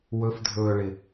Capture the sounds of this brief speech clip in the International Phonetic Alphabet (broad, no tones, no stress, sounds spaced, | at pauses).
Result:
w ɵ f dʱ ɵː ɭ ɪ